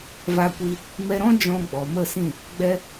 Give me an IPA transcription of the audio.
va˧kʷi˧ | mɛ˧ɾɔ̃˦ d͡ʒɔ̃˧ɡ͡bɔ˨ mə˦˨sĩ˦˨ | ɡ͡bɛ˦

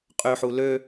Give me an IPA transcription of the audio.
qʼøħu lø

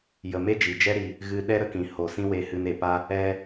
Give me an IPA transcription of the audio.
jə˨ me˦d͡ʒi˨d͡ʒɛ˦ ɾi˧ | ɣɨ˧ ɗɛ˦ɾə˧kĩ˨ ho˨sĩ˦we˧ hɨ˧ne˨pa˦ | ɛ˦

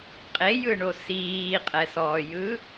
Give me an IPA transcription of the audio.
qʼejɯɳo siːqʼɛsɔːjɯ

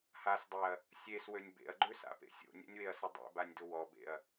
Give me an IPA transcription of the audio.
hasdˤeɐ̯ | sʲeswønʲ bḛɐ̯ɡ͡ǃøsa̰pḛ sʲo̰nʲɛ̰nʲweɐ̯sʊ dˤḛbanʲdʊ wɔbḛɐ̯

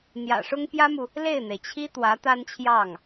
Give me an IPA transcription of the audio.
n̪jä̰˨˩ʂʊ˥ŋ pjä˥mu˨ | le˥˩ɪ̯n̪e˩ɪ̯t͡ɕʰi˥ t̪wä˧˥t̪a˥nt͡ɕʰjɑ˥˩ŋ

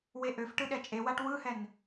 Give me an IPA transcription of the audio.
weʔøfʈɯ ɗɛt͡ʃʼewaʈ wɯhɛn

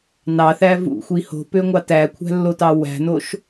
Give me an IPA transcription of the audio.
nɑθæ vṵxʷi ho̤pøŋʷɑ tækʷʰæ̤lːotɑ wæ̤noʃ

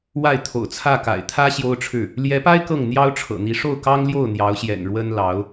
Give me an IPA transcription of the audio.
wa˥˩ɪ̯t̪ʰo̰˨˩ʊ̯t͡sʰä˥˩ka̰˨˩ɪ̯ t̪ʰä˥ ɕjo˥ʊ̯ʈ͡ʂʰɻ̩˥˩ | ljɛ˧˥pa˥ɪ̯ kɤ˥˩ŋn̪jɑ˥ʊ̯ ʈ͡ʂʰɤ̰˨˩n̪i˧˥ ʂo˥˩ʊ̯kɑ˥ŋljo˥˩ʊ̯ n̪jɑ˧˥ʊ̯ɕjɛ̰˨˩n ɻwə˥nlɑ˧˥ʊ̯

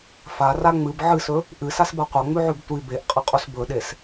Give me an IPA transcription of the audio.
fara ŋ͡mɨb ʕɨsɵ | ʔɨsasba qʷɐŋ͡mʉʕʉb tʷi beʔqʼɐqʼus bɵɗes

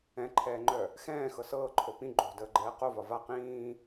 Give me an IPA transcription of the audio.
ɛ̃ǃʰɛːŋ͡ǃœ | xɛ̃ːxɤ sɤːǃʰo pĩ ɡ͡ǃo̤dəːɡ͡ǃɛː qovɒ va qĩː

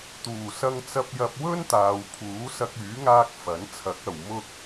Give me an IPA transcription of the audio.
t̪uː˨˩sɐ˧ŋt͡sɐ˧p̚jɐ˧p̚ wɵ˥nt̪aː˨wpʰuː˨˥ sɐ˧k̚yː˨˥ŋaː˧k̚ fɐ˨˥n t͡sʰɐ˨˥k̚ɐ˨w mʊ˥k̚

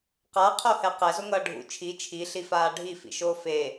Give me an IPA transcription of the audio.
qaqʰohɛ qɛzoŋʌː ɖʱṵ t͡ʃʰi t͡ʃʰiɬifaː ɖʱifḭʃoː fe

